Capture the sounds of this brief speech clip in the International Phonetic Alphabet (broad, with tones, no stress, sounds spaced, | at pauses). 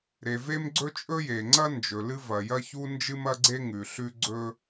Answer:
ɾ e˩ v e˥ m ɡ͡ǀ ɵ˥ t͡ʃʼ ɵ˥ j e˩ ŋ͡ǀ ɐ˥ n d͡ʒ ɵ˩ l ɨ˥ v ɐ˩ j ɐ˥ ç u˥ n d͡ʒ ɨ˥ m ɐ˥ ɡ͡ǀ e˥ ŋ ʉ˩ ɬ ʉ˥ ɡ͡ǀ ɵ˥